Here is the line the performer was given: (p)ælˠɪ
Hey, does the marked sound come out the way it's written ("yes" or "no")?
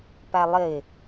yes